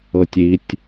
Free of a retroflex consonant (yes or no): yes